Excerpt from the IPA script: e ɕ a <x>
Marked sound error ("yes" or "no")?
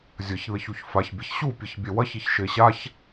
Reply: yes